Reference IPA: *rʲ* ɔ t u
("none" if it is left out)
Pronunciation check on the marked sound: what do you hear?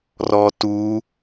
r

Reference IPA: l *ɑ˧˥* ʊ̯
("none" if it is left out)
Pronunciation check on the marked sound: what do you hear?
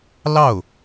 ɑ˥˩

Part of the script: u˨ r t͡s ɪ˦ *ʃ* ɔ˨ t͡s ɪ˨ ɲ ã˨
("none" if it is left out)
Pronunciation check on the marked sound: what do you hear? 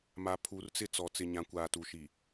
t͡s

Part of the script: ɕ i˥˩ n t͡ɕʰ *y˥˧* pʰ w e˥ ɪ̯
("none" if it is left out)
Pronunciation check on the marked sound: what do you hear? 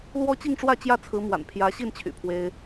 y̰˨˩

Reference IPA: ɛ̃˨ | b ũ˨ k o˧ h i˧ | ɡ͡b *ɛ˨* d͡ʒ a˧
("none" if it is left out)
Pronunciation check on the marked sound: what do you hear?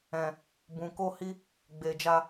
e˨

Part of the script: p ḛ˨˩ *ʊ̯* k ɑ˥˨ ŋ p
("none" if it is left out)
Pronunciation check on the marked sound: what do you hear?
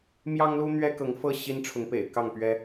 ɪ̯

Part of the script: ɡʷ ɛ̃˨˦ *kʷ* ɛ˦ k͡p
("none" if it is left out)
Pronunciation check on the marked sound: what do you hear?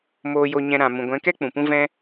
k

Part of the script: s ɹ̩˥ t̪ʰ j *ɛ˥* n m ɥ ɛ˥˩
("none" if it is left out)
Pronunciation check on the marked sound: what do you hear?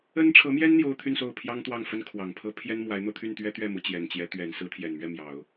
ɛ˨˩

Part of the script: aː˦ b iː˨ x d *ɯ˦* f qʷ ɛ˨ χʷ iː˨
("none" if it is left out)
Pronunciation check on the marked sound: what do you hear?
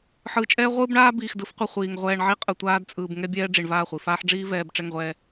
ɯ˨˦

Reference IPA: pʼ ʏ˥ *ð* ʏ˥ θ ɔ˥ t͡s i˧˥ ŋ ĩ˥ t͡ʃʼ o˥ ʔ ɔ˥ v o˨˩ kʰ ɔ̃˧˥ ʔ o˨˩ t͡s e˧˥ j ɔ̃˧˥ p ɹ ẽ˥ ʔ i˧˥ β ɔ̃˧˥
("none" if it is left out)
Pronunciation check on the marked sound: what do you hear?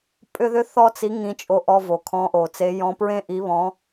ð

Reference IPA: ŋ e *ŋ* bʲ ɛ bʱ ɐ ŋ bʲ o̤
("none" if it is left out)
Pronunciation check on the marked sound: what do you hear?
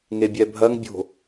none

